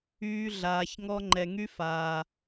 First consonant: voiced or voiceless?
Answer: voiced